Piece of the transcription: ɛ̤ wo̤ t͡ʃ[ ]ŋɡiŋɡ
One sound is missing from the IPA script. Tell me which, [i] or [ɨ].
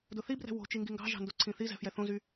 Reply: i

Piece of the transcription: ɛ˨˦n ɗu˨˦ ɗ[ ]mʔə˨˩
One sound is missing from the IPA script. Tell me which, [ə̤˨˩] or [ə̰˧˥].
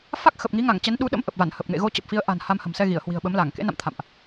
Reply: ə̰˧˥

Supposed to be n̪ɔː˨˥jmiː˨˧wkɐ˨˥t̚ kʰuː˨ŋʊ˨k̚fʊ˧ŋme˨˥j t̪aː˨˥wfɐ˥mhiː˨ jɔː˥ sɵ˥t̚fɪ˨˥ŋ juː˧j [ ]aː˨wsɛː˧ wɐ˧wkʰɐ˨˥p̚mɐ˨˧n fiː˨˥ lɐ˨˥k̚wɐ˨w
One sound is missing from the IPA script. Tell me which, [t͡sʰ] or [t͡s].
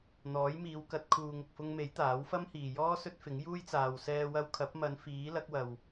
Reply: t͡s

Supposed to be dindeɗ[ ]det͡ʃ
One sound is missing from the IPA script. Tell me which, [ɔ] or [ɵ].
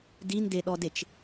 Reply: ɔ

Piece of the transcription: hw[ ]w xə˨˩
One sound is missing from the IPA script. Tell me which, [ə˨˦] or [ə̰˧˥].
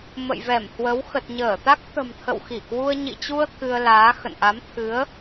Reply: ə˨˦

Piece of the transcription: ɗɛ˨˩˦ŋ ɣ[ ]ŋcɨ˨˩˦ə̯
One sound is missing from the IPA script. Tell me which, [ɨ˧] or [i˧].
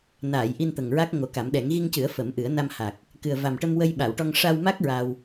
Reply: i˧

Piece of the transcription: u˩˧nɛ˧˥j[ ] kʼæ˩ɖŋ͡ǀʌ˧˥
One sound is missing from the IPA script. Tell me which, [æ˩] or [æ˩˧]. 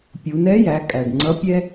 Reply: æ˩˧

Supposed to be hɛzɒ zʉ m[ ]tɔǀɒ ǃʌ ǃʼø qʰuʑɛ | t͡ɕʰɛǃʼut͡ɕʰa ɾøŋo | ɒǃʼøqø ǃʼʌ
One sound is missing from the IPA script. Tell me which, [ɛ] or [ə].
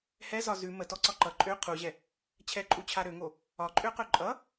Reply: ə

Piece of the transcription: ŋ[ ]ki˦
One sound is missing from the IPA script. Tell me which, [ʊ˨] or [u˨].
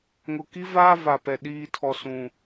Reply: ʊ˨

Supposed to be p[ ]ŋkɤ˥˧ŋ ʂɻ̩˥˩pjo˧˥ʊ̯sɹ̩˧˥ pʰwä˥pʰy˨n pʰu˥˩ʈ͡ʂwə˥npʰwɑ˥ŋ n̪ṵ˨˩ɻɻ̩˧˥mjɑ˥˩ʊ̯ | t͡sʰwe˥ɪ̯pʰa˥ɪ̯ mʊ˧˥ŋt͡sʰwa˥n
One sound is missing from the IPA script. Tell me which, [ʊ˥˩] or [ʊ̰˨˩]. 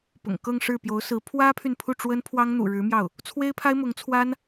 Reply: ʊ̰˨˩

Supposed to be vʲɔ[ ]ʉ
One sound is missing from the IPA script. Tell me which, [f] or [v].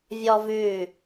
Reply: v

